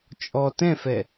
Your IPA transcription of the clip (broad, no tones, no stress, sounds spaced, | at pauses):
t͡ʃʼ ɔ t ɛ̃ f ɛ